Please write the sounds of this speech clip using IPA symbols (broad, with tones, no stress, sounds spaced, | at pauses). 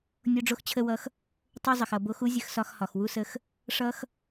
nʲ o˧ ɖ͡ʐ o˧ x t͡ɕʰ ə˧ w ʌ˧ x | tˤ o˦ zˤ ə˨ x ʌ˨ b o˨˦ x u˦ zʲ ə˧ x s ɒ˧ x h ɒ˨ x w u˧ s ə˧ x | ʂ ʌ˦ x